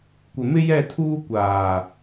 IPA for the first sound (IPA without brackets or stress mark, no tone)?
kʷ